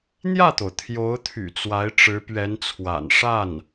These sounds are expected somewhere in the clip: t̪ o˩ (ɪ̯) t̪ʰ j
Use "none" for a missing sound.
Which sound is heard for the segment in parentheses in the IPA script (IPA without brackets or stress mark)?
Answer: ʊ̯